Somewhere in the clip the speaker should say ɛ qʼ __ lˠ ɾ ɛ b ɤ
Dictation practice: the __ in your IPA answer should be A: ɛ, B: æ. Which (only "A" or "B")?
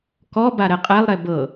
A